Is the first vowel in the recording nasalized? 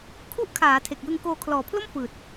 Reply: no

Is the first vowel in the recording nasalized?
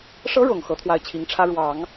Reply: no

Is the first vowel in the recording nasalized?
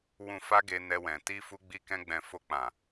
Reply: yes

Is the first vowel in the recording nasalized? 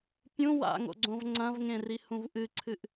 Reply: yes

